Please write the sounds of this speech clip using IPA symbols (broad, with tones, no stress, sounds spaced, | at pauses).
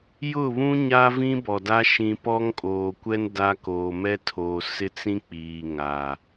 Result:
j ʊ˦˨ β ũ˦ ɲ a˦ v ĩ˦ b ɔ˨ d a˦ ʃ ĩ˨ p ɔ˦ ŋ kʼ oː˨ kʷ ɛ˦ n d a˦ k oː˨ m ɛ˦ tʰ oː˨ s ɪ˦ t͡s ĩ˦ k͡p iː˨ ŋ a˨